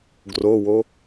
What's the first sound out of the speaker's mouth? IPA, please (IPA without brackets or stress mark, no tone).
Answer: ɡ